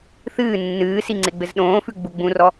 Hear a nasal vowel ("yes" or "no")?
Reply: yes